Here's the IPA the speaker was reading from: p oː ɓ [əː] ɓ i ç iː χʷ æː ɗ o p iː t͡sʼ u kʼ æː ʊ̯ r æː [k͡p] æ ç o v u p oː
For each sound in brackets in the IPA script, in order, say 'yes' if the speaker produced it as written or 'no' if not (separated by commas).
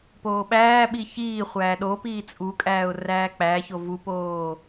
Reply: no, yes